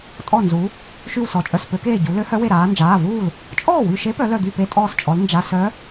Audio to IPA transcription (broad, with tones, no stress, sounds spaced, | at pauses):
tʼ ɔ˧˩ n z u˩˧ | ʃ y˧˩ w s ɔ˩˧ t͡ʃʼ œ˩˧˩ s p ø˩˧ k eː˧˩ ɟ u˩˧ l ø˧˥ h œ˧˥ w e˧˩ ɾ aː˩˧ n d͡ʒ aː˩˧˩ v uː˥˩ l | t͡ʃʼ ɔː˥˩ w y˧˩ ʃ e˧˥ p œ˩˧ l œ˧˩ d̪ y˥˩ p e˧˥ tʼ ɔː˧˩ s t͡ʃʼ ɔ˩˧ l n d͡ʒ a˩˧˩ s œ˧˥